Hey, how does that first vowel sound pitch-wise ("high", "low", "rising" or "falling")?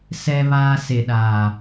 high